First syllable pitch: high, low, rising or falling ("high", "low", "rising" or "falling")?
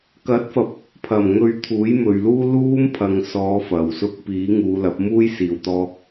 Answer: rising